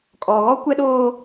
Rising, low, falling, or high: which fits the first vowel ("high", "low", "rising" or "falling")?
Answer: low